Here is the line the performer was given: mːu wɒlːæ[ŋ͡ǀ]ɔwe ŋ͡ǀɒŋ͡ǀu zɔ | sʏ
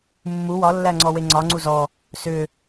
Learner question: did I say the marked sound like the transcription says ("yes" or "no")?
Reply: yes